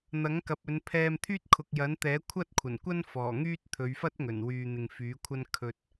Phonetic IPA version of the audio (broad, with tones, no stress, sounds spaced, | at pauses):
n̪ ɐ˨˥ ŋ k ɐ˨ p̚ ɵ˨˧ n pʰ ɛː˧ m t̪ʰ yː˥ t̚ kʰ ʊ˨ k̚ j ɐ˨˥ n t̪ ɛː˨˥ kʷʰ ɐ˥ t̚ kʷʰ ɐ˨˩ n kʷ ɐ˥ n f ɔː˨˩ ŋ yː˥ t̚ t̪ʰ ɵ˨˧ ɥ f ɐ˥ t̚ ŋ ɵ˨˩ n w yː˨ n̪ ɪ˨ ŋ f yː˨˥ kʷʰ ɐ˥ n kʰ ɵ˧ t̚